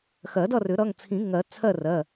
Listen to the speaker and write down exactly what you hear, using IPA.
x ɜ˨˩˦ d ʌ˥˨ r ʏ˨˩˦ ɾ ʌ˩˧˩ ŋ t͡sʰ ĩ˨˩˦ ŋ ɜ˨˩˦ t͡sʰ ɜ˥˨ r ɜ˩˧˩

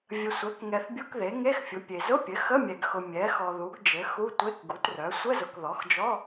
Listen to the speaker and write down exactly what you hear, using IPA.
vʲ ə˨ sʷ ɛ˩˥ k ŋ ɛ˨ θ bʲ u˧˥˧ k ð e˩˥ ŋ e˧˥˧ x fʲ ʊ˩˥ pʲ e˨ z ʊ˧˥˧ pʲ ɘ˩˥ x ə˧˥˧ mʲ ɛ˨ ɡ x ʊ˨ mʲ ɛ˩˥ x ɔ˨ ð u˩˥ ɡ d͡ʒ ɘ˩˥ x u˧˥˧ tʷ e˧˥˧ k ɡ u˩˥ t r œ˩˥ sʷ ə˧˥˧ z ʊ˨ k ð ɔ˩˥ x d͡ʒ ɔ˧˥˧

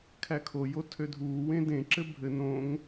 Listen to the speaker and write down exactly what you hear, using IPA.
kʰ æ kʰ o j o tʰ ø dʱ uː w ẽ d ẽ ǁ ɘ bʱ ɘ n õ ŋ

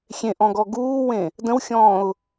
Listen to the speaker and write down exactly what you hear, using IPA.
xʲ ẽ ʔ ɔ̃ ɡ ɔ ɡ uː w ẽ | d ə̃ w xʲ ɔ̃ː ʊ̯

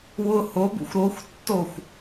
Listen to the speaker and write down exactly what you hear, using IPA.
w ʊ h o b ṵ xʷ ɾ o xʷ tː o xʷ

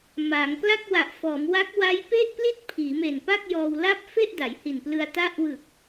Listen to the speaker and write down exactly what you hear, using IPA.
m a˩˦ ŋ k l a˥˩ k̚ w a˨˩ ʔ f ɔː˩˦ m w a˦˥ k̚ w a˦˥ j p e˥˩ ʔ p l i˥˩ t̚ pʰ iː˩˦ m e˨˩ n p a˥˩ k̚ j ɔː˧ w l a˥˩ p̚ f e˥˩ ʔ d a˩˦ j h i˨˩ n p l ɯ˧ a̯ t a˦˥ ʔ w ɯ˨˩ k̚

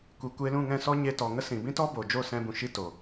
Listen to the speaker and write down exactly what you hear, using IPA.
kʷ i˨ kʷ e˧ l ũ˦˨ ŋ ɛ̃˦˨ s ɔ˦ ɲ e˧ t ɔ˨ ŋ ə˦ s ĩ˨ b ĩ˦ t ɔ˦ b o˨ d͡ʒ o˦˨ s ɛ̃˧ b ũ˨ ʃ i˧ t o˨

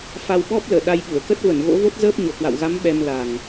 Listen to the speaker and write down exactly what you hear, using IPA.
f a˧ w ɓ ɔ˦˥ p̚ l əː˧˩ ɗ a˧ j ɓ u˧˩ ə̯ k ə˦˥ t̚ v ə˧˩ n ɣ o̰˧˥ v o˦˥ t̚ z əː˦˥ p̚ ɲ o˧˩ k w a̰˧˨ w ɣ a˨˦ m ɓ ɛ˧ m l a˨˩ ŋ

